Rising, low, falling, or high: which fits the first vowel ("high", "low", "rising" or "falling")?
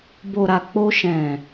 low